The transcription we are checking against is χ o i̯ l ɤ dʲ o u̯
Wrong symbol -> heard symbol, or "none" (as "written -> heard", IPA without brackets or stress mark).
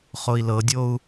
none